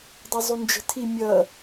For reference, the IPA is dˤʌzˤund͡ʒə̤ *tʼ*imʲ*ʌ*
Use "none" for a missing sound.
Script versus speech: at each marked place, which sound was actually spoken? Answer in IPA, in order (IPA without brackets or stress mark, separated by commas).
tʰ, ʌ